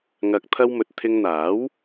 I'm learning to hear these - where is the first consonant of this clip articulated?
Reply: velum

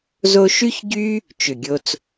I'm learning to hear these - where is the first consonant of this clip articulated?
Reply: tongue tip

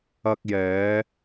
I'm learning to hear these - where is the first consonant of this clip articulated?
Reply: velum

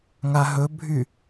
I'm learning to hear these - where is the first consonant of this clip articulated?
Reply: velum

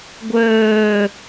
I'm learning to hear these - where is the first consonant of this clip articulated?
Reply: velum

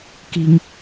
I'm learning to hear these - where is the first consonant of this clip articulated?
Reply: velum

